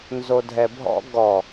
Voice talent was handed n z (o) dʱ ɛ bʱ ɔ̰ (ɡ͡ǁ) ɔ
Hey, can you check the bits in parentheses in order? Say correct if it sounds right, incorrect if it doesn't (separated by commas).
correct, incorrect